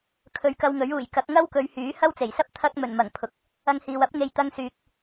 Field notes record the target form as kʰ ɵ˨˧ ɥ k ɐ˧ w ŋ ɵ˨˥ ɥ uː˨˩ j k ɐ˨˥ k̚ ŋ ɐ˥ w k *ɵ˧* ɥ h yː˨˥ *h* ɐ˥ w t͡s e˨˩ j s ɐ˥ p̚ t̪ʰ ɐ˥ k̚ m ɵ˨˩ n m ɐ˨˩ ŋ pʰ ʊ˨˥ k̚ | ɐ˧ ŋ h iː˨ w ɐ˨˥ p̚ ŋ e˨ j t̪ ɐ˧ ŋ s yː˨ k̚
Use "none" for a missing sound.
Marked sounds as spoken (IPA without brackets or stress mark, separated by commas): ɵ˨˧, h